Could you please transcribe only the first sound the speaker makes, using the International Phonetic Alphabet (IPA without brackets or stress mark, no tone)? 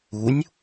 u